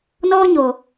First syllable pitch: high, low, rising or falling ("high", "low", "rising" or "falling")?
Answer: high